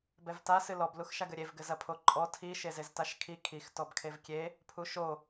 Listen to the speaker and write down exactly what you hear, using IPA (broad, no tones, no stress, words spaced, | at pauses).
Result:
bɛvta sɨlɔb luxʃaɡɘɾʲev ɡɘzɐpʰoǃʼɔ tʰi ʃezeztaʃkʰi kʰix tɔbkʰevkʲe | pʰuʃo